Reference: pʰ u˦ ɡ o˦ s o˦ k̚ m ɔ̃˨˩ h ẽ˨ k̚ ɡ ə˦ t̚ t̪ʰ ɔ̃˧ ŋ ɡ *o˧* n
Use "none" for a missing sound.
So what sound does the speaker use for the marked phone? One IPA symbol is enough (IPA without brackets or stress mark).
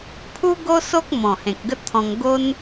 o˦